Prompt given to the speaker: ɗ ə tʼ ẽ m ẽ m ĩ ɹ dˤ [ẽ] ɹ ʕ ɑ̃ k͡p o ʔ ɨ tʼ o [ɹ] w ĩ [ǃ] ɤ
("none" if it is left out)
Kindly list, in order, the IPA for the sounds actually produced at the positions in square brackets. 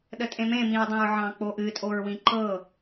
ẽ, ɹ, ǃ

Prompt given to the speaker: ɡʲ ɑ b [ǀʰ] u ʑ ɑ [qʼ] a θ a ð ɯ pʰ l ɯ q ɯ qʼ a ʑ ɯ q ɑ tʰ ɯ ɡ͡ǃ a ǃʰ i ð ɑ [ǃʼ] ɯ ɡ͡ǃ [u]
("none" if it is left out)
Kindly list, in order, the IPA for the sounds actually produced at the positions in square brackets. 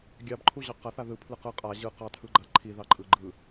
ǃʰ, q, ǃʼ, ɯ

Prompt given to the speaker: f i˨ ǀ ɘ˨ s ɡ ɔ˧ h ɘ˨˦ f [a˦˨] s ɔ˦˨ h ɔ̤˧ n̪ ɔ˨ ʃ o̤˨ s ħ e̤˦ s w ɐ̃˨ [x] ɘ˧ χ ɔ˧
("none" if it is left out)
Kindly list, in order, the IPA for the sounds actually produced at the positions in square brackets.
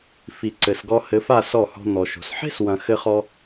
a˦˨, x

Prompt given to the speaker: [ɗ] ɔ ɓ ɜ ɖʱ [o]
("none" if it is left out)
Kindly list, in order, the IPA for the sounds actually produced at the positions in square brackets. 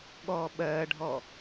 ɠ, ɔ

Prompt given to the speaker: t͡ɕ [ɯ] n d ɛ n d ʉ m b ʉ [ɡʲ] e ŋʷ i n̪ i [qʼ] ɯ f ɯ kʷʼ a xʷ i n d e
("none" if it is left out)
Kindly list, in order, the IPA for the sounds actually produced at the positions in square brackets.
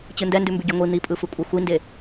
ɯ, ɡʲ, pʼ

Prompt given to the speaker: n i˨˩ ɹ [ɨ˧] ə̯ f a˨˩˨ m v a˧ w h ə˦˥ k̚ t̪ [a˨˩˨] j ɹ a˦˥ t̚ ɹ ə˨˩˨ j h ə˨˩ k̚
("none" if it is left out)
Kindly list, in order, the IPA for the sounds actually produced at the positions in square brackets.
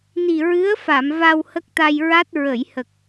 ɨ˧˥, a˧

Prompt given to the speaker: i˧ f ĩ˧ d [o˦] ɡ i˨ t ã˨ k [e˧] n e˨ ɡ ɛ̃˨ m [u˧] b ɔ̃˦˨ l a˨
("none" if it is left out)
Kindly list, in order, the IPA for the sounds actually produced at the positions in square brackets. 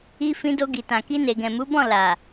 o˧, i˧, u˨˦

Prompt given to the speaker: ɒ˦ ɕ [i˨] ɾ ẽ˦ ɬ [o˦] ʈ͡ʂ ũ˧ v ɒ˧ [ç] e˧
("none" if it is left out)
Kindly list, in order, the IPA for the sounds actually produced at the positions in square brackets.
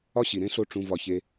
i˨, o˦, ç

